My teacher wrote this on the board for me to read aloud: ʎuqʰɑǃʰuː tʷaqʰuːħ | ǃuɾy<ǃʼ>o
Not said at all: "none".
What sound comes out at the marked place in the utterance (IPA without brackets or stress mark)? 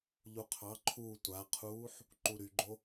ɡ͡ǃ